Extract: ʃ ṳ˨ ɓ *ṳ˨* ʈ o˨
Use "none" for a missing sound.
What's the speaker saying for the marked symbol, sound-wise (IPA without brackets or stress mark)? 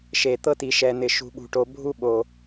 ṳ˨